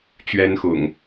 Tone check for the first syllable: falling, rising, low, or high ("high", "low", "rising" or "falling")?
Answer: high